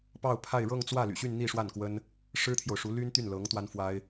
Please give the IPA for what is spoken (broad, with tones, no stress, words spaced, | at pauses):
pɑ˥˧ʊ̯pʰa˥˧ɪ̯ ɻɤ˥˧ŋt͡swä˥˩ly̰˨˩ɕy˥˧n n̪i˥˧ʂwa˥˩nkwə˥n | ʂɻ̩˥t̪ʰjo˨ʊ̯ʂu˧˥ ly˥nt̪y˥˩nlɤ˧˥ŋ t̪wa˥nfwa˥ɪ̯